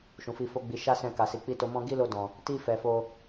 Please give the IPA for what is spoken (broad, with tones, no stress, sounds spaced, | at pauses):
ʃ ũ˨ f i˧ f o˦ ɡ͡b i˧ ʃ a˦ s ɛ̃˧ k a˨ s i˨ k͡p i˧ t o˧ m ɔ̃˦ ɡ i˦ l o˧ d ɔ̃˨ | t i˧ f ɛ˨ f o˧